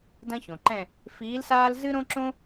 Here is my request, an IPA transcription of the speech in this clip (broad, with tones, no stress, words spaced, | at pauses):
dɐ̃˥çõ˩ǃɛ̃˥˧ | fiː˧˥lsaː˥lzɨ˥ ɾõ˥ǁõ˥